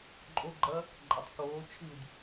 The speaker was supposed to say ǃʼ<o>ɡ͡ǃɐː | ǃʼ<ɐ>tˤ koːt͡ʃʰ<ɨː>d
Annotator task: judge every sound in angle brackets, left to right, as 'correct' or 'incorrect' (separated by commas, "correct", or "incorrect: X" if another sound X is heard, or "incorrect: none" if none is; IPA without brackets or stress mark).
correct, correct, correct